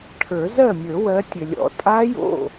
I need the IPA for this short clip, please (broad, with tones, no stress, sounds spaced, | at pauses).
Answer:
ʈʰ ə˞˨˩˦ z ɜ˥˩ mʲ ə˞˨˩˦ w ɜ˨˦ tʲ ɘ˩ lʲ ɔ̰˨˩˦ tʼ a˦˥ j o̰˥˩